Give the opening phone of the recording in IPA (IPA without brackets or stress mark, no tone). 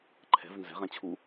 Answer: ǃʰ